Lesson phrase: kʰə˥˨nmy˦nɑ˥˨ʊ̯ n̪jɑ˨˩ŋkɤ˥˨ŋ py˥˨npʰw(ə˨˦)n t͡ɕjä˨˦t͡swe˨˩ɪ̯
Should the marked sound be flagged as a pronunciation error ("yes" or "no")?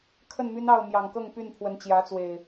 no